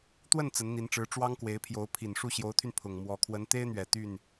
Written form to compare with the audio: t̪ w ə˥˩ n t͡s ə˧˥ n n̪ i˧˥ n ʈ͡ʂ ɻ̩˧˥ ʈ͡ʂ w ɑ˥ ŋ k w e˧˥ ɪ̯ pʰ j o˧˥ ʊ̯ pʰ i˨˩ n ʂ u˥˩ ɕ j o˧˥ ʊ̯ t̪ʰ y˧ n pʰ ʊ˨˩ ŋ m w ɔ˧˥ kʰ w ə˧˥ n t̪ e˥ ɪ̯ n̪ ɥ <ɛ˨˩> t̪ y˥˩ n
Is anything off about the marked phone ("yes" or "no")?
no